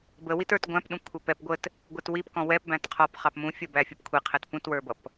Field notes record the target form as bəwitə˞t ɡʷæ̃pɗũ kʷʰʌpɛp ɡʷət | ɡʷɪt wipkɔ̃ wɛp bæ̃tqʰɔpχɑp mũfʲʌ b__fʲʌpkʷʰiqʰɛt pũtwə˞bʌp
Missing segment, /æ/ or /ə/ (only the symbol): æ